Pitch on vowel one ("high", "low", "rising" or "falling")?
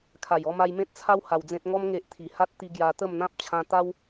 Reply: low